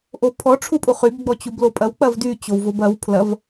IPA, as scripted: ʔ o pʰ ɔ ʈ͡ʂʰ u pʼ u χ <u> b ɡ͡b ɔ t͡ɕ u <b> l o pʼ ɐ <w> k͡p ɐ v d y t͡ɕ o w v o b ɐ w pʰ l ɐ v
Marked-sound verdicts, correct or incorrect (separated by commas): incorrect, correct, correct